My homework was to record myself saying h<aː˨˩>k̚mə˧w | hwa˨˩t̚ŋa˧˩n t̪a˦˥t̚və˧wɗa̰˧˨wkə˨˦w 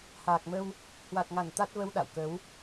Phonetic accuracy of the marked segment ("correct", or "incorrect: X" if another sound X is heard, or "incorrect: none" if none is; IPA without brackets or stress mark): correct